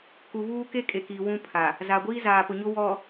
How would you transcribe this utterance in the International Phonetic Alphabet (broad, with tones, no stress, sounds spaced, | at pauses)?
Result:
k u˨ β uː˦ k e˦ kʼ e˨ k iː˨ w ũ˦ pʰ a˨ | z a˨ ɡʷ iː˦ z aː˨ p ʊ˨ ɲ ʊ˦ w ɔ˨